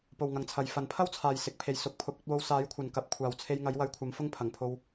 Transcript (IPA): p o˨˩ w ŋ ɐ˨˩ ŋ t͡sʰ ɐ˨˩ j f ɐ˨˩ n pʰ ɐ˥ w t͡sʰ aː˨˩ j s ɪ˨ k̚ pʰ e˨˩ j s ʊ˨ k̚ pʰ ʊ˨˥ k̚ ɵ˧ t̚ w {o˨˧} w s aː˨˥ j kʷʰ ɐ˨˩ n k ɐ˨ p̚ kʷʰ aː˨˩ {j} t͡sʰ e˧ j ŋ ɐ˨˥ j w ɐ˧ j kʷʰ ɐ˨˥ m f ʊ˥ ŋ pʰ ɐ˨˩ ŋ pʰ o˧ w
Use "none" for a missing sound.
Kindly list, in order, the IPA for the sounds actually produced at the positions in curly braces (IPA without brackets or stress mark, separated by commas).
o˧, w